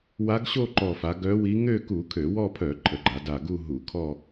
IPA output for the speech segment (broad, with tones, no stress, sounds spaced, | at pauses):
w a˧˥ ɡ ɕ o˥˧ ǃ ɔ˨˩ f a˩˧ ɡ œ˧˥ w i˧˥ ŋ ø˥˧ k u˧˩˧ kʰ ø˧˩˧ w ɔ˥˧ pʰ œ˧˩˧ ǃʰ ə˩˧ ɡ͡ǃ a˩˧ d a˨˩ ɡ u˥˧ ɦ u˧˩˧ kʰ ɔ˥˧